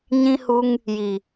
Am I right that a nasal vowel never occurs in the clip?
no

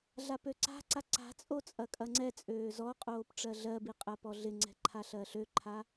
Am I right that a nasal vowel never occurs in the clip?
yes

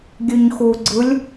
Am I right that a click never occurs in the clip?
no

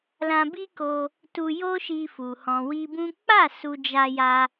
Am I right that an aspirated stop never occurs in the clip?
yes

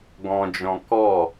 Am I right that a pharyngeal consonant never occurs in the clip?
yes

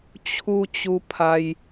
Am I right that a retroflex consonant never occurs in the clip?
yes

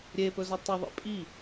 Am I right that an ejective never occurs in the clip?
no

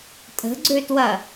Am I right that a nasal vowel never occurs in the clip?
yes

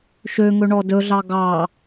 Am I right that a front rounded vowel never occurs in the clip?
no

